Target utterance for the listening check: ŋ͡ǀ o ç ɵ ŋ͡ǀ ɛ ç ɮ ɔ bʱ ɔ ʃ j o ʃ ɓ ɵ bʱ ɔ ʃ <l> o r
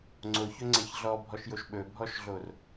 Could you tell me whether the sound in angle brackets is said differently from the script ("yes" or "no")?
yes